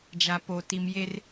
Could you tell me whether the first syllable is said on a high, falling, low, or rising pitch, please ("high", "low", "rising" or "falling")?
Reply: low